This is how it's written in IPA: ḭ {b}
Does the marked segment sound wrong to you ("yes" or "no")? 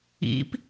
yes